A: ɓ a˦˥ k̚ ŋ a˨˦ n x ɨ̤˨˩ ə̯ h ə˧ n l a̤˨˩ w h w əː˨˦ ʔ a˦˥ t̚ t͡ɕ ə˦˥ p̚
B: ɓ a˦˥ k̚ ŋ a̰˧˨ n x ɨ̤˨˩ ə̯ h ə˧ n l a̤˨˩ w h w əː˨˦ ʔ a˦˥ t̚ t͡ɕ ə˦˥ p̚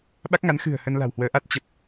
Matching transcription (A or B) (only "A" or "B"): A